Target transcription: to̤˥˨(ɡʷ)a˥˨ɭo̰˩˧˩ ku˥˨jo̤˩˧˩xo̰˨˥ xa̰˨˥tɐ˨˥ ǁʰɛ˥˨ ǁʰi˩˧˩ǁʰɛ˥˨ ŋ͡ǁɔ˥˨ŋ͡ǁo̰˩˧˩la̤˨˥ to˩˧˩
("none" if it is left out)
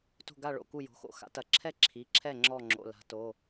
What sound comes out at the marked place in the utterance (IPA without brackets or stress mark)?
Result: ɡ